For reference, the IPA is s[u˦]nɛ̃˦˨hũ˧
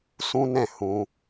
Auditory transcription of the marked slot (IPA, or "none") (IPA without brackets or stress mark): ũ˦